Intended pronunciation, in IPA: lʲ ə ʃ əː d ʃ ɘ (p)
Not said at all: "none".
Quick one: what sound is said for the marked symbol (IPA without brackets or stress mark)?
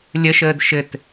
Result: t